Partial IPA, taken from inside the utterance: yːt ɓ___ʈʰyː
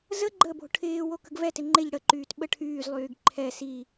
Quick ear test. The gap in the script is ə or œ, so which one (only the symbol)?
ə